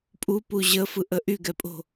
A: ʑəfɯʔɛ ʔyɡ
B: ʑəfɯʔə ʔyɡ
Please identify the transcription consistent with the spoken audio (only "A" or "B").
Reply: B